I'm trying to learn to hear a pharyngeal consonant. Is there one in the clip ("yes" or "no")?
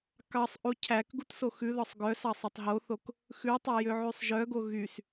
yes